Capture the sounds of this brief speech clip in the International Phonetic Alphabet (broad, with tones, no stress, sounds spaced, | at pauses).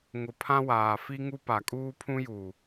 ŋ ʊ˨ pʰ ã˦ w aː˨ f i˦ ŋ u˦ p a˨ kʼ uː˦ pʰ ũ˦ j uː˨